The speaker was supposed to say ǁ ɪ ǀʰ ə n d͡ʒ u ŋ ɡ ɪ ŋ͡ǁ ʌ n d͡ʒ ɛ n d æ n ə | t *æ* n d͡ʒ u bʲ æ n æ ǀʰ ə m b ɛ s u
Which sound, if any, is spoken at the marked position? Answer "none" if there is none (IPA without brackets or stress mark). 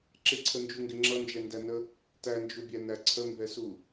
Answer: æ